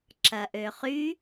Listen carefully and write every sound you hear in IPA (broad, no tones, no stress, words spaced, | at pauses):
ǁɐʔøχy